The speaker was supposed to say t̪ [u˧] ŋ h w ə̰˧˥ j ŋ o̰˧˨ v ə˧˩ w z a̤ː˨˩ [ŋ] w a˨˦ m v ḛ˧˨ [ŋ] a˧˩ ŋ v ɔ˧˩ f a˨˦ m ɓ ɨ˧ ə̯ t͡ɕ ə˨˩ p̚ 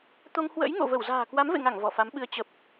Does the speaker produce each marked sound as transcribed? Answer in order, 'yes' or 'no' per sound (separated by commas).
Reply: no, no, yes